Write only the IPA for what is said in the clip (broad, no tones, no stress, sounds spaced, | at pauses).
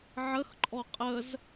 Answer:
ʕ ə x ǃʼ ɔ qʼ ə z